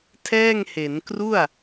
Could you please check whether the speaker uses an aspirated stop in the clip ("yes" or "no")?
yes